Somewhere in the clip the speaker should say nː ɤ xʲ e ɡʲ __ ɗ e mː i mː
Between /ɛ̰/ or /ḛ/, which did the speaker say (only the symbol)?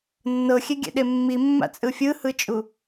ɛ̰